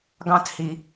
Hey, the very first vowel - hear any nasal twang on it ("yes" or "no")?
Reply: yes